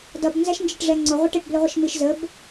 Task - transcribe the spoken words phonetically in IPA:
dʌb nzæʃnd͡ʒiʈʐɛŋ͡ǀʊ ʁʷəʈəʈ blɪʁʷəʃmiʃ zəb

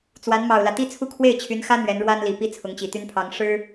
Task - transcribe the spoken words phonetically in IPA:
t͡swa˧˥n mɑ˨˩ʊ̯lä˦ t̪i˥t͡sʰu˥˧ kʰwe˥˩ɪ̯t͡ɕʰy˧˥nxä˥ n̪ɥɛ˧˥nɻwa˥nli˨˩ pi˥˩ t͡sʰʊ˧˥ŋt͡ɕi˨˩t̪y˥npʰɑ˧˥ŋ ʂɻ̩˥

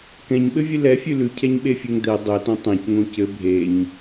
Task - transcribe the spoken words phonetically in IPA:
kɛ̃ɲɓɘvʲɨ lɛfʲʉ lʉcʰɛɲɓefʲɛŋ d̪ɛ dˤɛtõ tˤɛ̃cŋõ cɘ bʱeɲ

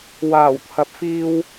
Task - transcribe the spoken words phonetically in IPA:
waː˨˩wt̪ʰɐ˨p̚fiː˧w

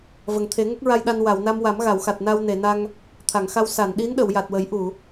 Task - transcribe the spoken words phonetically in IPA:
və˨˩ŋ t̪ʰe˨˩˦ŋə˦˥k̚ɹa˧jɗa˧n wa˨˩˨w na˧mwa˨˩˦m ɣa˨˩˨wxa˨˩t̚na˧w ne˨˩˨na˧ŋ | t̪ʰa˨˩˨ŋxa˧w sa˨˩˨nɗi˧˥n ɗə˨˩˨wja˨˩t̚wə˨˩˦j ʔu˨˩˨

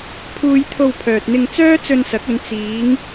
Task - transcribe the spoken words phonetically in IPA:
pʰuː˨j t̪ʰo˧wpʰœː˨t̚n̪ɪ˧ŋ t͡sœː˥t͡sɵ˧nsɐ˨˥k̚ɵ˨˧n t͡siː˨˧ŋ

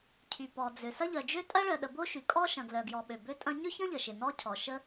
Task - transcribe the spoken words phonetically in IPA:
cʰy˩pɔ˩d͡zø˩ sɐ˥ʎœ˩d͡ʒø˥ tʼɐ˥ɭœ˩ɗə˩ bo˥ʃy˩kʼɔ˥ ʃɐ̃˩ɡlœ˩ɡjɔ˩ ɓø˩bø˥tʼɐ̃˥ ɲø˥çɐ̃˥ʎə˩ ʃɪ˩nɔ˥cʰɔ˩ ʃə˥

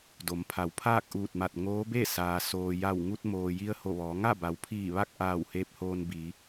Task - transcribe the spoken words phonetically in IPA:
do˩˧mpʰa˩˧wpʰaː˥˨k̚ ʔuː˧˩t̚ma˧˩t̚ ŋoː˧˥be˥˨saː˩ soː˩ja˧˩w ŋu˧t̚moː˩ji˧ə̯ ho˧˩ʋɔː˩˧ ŋa˥˨ba˩˧wpʰiː˧˩ ʋa˥˨k̚ʔaː˧˩w heː˧p̚hoː˧nbiː˩˧

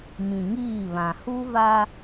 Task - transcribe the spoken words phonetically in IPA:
mĩ˨ŋiː˦˨βã˨ hu˦va˦

